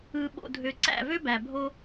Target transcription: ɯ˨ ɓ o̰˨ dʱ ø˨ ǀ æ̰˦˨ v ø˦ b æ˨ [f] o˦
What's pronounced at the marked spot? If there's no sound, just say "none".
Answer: bʱ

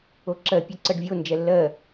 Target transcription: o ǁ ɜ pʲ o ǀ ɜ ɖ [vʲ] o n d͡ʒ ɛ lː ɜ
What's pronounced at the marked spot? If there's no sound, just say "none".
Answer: vʲ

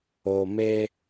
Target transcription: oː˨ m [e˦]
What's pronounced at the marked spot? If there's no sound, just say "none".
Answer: eː˦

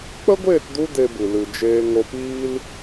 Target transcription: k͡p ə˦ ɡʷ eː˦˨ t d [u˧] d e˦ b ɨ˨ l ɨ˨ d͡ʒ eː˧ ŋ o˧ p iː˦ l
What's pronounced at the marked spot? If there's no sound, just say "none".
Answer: u˧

